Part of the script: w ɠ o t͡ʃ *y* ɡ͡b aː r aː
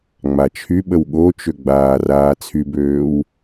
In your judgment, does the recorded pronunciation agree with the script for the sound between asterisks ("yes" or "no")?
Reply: no